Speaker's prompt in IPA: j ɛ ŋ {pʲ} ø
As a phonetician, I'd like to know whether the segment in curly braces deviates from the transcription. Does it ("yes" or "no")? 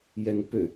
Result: yes